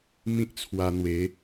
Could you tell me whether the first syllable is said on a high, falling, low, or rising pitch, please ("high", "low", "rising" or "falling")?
high